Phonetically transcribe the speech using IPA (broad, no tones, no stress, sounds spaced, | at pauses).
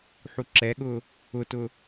ħ u ǁ ɛ ɠ ʊː | ʊ t ʊː